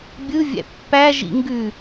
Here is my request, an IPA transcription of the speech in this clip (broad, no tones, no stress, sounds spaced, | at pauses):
bʲ ɯ vʲ æ̰ pː æ ʒ ḭ ŋ ɡ ʉ